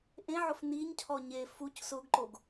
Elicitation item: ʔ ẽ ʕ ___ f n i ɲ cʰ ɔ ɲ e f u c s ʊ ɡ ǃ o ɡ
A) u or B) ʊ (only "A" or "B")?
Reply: B